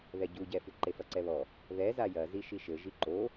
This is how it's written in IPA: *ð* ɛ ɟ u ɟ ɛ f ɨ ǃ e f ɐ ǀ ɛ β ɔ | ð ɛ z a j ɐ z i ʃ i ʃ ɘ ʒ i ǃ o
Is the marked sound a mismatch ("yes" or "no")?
no